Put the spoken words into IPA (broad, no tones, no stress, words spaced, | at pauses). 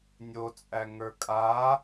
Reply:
nʲot͡sʼæŋə˞ kʼa